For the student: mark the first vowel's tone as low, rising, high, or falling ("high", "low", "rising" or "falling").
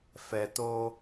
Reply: low